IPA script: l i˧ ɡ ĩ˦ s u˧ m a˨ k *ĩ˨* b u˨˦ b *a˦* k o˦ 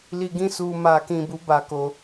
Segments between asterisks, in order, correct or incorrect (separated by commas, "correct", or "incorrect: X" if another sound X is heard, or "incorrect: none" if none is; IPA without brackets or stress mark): correct, correct